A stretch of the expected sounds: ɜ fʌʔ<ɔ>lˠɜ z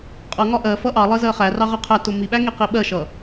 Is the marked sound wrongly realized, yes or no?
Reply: yes